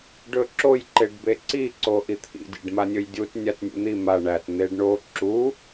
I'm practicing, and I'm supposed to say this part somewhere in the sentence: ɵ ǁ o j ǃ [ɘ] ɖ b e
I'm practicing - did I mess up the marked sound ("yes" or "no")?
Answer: yes